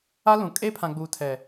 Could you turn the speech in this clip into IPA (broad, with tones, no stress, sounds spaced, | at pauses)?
a˦ l ũ˨ kʼ e˦ pʰ ã˨ ɡ͡b uː˨ tʰ ɛ˨